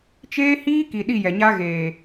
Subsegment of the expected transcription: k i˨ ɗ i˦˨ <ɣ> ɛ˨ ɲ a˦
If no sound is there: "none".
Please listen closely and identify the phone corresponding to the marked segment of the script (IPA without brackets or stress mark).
j